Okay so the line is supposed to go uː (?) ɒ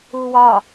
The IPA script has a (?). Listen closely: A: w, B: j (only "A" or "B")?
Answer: A